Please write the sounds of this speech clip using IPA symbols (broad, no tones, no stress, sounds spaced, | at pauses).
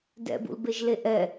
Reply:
d ɛ̰ b ṵ l b e ʒ l e ʔ ɛ